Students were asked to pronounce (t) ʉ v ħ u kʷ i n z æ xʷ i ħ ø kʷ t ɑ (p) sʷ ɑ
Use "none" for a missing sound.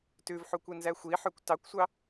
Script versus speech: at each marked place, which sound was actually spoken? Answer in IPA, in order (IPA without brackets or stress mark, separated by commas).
t, kʷ